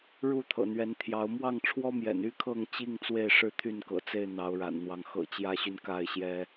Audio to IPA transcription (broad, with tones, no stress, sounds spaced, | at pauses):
ɻ u˥˨ t̪ʰ ɤ̰˨˩ n̪ ɥ ɛ˨˦ n t̪ʰ j ɑ˨˦ ʊ̯ m w ɑ˥˨ ŋ ʈ͡ʂʰ w ɔ˦ m j ɛ̰˨˩ n y˦ kʰ ɤ˥˨ ŋ t͡ɕ i˥˨ ŋ t͡s w e˥˨ ɪ̯ ʂ ɻ̩˥˨ t̪ʰ y˥˨ n k ɤ̰˨˩ t͡s e˥˨ ɪ̯ n̪ ɑ˨˦ ʊ̯ ɻ a̰˨˩ n n̪ w ɑ˦ ŋ x ɤ̰˨˩ t͡ɕ j ä˦ ɕ y˨ n k a˥˨ ɪ̯ ɕ j ɛ˦